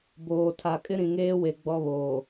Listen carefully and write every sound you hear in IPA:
b oː˨ tʰ a˨ kʼ ɪ˦ ɾ ĩ˨ ŋ eː˦ w e˨ ɡ͡b ɔ˦ β oː˨

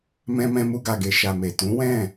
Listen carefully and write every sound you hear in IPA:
m ɛ̃˧ m ɛ̃˧ m u˧ ɡ a˨ ɡ e˨ ʃ a˨ m e˨ t ũ˨˦ w ɛ̃˦˨

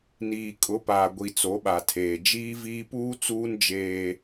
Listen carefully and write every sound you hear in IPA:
n iː˨ kʼ ʊ˨˦ p aː˨ ɡʷ i˨ t͡s o˨˦ ɓ a˨ tʰ eː˨ d͡ʒ iː˦ v iː˦ p uː˦ t͡s uː˦ n d͡ʒ eː˦

